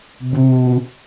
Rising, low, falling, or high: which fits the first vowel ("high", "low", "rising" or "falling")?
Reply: high